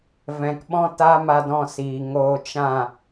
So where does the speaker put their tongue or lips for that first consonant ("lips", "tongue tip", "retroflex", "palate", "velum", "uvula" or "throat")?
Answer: lips